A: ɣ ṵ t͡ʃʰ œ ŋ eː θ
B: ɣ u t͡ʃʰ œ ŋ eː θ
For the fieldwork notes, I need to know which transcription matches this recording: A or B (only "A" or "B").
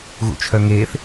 A